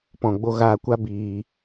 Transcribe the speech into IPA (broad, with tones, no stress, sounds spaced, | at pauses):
p ɔ̃˨ ɡ͡b o˧ ɣ aː˧ kʷ a˦ b iː˧